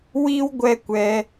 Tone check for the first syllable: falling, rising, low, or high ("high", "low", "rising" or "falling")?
high